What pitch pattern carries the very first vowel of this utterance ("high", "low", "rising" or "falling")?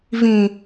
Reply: low